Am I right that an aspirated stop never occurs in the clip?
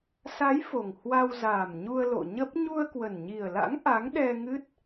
yes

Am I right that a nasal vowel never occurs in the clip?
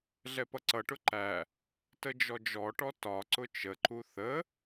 yes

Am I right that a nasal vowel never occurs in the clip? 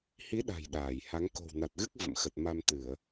yes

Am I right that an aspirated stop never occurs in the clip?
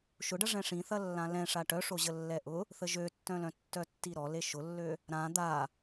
yes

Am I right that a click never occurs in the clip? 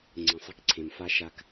no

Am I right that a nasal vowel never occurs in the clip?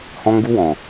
no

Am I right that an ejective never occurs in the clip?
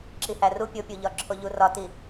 yes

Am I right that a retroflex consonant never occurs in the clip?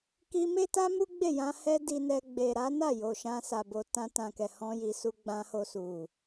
yes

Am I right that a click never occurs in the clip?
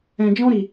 yes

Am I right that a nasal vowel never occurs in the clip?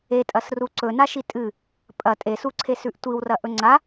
yes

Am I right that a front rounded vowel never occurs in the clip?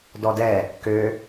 no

